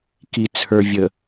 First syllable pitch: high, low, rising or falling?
low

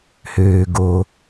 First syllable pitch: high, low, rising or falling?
low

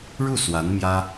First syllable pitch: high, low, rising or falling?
falling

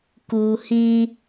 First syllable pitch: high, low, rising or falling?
low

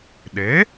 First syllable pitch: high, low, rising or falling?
rising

